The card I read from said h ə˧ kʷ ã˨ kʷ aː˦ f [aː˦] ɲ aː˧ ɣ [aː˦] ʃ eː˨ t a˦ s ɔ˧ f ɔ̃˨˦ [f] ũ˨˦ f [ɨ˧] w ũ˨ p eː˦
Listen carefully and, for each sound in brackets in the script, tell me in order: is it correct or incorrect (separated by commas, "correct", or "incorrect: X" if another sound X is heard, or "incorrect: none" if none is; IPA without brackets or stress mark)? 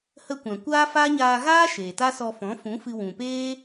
correct, correct, correct, correct